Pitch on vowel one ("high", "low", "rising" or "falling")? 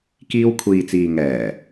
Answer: high